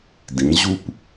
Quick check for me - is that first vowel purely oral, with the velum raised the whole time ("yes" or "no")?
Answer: no